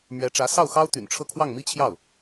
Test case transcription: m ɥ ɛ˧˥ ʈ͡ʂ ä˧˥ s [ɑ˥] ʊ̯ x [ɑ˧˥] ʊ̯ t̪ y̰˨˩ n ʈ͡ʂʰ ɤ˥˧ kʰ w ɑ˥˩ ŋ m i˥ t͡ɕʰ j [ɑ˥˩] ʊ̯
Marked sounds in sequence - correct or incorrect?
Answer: incorrect, incorrect, correct

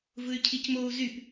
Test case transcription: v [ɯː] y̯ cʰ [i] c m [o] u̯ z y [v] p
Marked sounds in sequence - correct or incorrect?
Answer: incorrect, correct, correct, incorrect

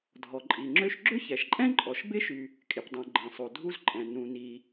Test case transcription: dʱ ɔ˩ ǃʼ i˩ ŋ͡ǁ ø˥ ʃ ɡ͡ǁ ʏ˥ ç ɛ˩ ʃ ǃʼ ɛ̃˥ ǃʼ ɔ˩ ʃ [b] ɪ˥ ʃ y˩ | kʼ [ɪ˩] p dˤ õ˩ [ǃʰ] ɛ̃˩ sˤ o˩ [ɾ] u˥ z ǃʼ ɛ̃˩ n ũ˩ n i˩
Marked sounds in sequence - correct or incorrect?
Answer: correct, correct, incorrect, incorrect

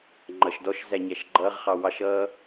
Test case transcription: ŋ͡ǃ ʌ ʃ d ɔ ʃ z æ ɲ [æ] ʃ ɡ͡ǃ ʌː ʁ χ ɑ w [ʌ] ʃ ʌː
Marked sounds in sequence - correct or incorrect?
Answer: correct, incorrect

